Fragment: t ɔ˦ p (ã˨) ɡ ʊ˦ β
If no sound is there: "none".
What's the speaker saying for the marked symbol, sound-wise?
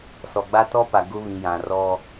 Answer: a˨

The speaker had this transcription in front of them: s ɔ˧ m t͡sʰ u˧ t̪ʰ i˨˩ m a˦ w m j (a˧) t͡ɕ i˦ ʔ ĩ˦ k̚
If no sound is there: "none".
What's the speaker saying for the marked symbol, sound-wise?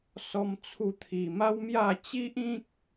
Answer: a˥˧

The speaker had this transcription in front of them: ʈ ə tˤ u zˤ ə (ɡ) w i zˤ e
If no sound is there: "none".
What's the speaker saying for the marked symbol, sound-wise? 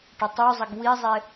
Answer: ɡ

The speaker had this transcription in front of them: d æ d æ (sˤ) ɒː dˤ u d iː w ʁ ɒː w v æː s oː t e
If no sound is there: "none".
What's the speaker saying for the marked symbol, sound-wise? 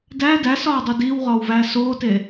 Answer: s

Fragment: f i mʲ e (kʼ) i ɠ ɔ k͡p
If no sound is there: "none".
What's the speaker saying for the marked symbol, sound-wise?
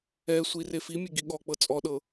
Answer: ɡ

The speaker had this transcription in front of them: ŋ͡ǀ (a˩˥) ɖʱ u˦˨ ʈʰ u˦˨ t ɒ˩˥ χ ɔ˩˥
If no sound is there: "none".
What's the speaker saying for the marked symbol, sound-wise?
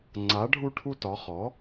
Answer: a˩˥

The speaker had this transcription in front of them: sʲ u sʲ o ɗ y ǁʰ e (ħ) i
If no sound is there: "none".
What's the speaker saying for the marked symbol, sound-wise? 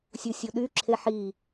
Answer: ħ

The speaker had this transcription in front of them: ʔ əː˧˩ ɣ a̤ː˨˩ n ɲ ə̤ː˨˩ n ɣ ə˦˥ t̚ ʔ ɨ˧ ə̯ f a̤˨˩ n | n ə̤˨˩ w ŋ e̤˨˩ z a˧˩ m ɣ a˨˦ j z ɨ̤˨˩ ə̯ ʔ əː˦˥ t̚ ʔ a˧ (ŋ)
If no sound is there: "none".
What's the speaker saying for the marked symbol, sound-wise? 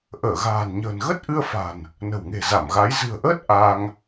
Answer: ŋ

